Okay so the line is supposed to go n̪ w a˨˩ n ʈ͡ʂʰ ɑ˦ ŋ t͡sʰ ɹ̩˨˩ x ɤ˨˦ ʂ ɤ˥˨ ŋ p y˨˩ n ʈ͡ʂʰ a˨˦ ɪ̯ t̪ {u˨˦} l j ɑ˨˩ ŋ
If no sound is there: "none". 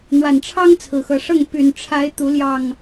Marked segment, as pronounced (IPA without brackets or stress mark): u˨˦